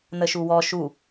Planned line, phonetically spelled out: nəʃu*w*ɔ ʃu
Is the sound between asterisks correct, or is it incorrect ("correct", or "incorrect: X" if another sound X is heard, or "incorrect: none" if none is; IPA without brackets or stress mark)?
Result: correct